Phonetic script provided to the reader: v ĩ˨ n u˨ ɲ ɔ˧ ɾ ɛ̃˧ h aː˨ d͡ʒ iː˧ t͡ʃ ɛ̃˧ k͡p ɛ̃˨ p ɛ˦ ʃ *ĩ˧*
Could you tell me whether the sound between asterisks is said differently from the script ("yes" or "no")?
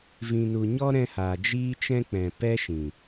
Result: yes